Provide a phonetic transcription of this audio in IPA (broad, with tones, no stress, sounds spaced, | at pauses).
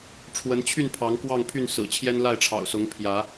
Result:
ʈ͡ʂʰ w ə˨˦ n t͡ɕʰ y˥˨ n pʰ ɑ˨˦ ŋ k w ɑ˥˨ ŋ pʰ y˥˨ n s ɹ̩˨˩ t͡ɕʰ j ɛ˦ n l a˥˨ ɪ̯ ʈ͡ʂʰ ɑ̰˨˩ ʊ̯ s ʊ˨˦ ŋ pʰ j ä˨˦